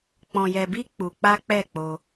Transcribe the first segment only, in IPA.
k͡p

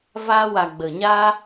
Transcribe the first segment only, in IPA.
v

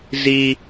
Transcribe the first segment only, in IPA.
z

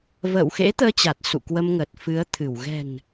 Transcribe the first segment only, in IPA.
v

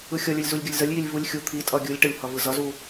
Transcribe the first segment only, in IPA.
ɯ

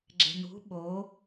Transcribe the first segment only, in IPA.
ɡ͡ǁ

